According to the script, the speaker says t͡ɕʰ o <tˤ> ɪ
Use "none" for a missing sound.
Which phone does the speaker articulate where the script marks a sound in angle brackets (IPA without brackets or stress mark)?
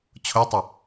tˤ